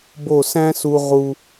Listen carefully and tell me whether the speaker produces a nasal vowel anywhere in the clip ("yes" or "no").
yes